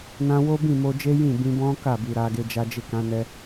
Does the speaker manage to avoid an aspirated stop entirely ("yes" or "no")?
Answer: yes